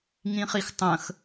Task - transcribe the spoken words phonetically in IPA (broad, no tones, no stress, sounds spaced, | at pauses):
ŋ ĩ χ i x tˤ ə̃ x